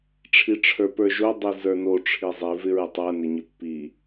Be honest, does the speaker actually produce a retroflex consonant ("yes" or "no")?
yes